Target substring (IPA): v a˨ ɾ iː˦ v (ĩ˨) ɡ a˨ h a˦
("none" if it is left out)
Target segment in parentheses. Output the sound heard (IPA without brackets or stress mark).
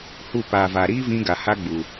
ĩ˧